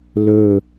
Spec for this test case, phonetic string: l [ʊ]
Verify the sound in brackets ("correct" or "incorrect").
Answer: incorrect